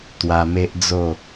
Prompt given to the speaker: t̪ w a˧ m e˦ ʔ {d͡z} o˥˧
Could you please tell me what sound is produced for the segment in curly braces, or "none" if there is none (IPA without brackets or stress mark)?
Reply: d͡z